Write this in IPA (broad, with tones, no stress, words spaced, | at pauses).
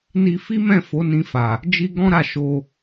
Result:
ni˧fi˦mɛ̃˦˨ fo˨˦nĩ˧fa˨ | d͡ʒi˦ ɡɔ̃˦ɾa˦˨ ʃo˧